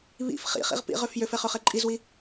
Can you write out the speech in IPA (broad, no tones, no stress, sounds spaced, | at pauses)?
β ḭ f χ ḭ χ ḭ ʁ p ḭ ʁ ø f j ø f ɛ χ ø χ ɛ ǃʼ i z w i